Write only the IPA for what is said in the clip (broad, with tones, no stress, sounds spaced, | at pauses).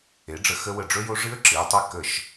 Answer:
e˩˥ ɖ͡ʐ ə˧ x ə˦˥ w ə˧˩ ɖ͡ʐ ɵ˦˥ j o˦˥ ʐ ɨ˦˥ ə̯ ǁ ɨ˩˧ ə̯ tˤ ɛ˦˥ k ə˧˩ ʃ